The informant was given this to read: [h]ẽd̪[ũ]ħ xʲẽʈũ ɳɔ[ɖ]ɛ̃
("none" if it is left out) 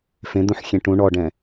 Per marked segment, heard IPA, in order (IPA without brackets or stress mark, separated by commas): f, ũ, ɖ